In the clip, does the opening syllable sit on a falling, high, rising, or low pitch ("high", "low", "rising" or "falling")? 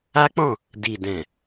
high